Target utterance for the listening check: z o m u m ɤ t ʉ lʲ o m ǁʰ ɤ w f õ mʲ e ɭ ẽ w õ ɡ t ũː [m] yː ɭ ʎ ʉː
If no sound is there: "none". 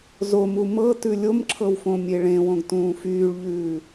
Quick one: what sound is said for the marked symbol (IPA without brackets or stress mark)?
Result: f